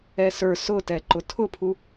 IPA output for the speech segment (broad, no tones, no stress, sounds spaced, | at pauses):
ɛ s ə˞ s ʊ t ɛ ǃ ʊ tʰ ʊ pʰ u